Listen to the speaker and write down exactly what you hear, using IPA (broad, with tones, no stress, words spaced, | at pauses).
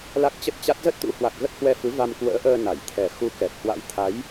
la˦˥k̚t͡ɕə˦˥t̚t͡ɕa˦˥t̚ zə˦˥t̚t̪ṵ˧˥hwa˨˩k̚ ɣə˦˥t̚hwɛ˧fɨ˨˦va˧m kwə̰ː˧˥ʔəː˧ na˧˩j t̪ʰɛ˨˩xu˧ kɛ˨˩t̚hwa̰˧˥jt̪ʰa˨˦j